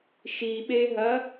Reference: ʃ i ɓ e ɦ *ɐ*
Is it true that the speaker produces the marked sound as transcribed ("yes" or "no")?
yes